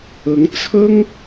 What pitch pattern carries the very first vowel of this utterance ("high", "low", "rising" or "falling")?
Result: rising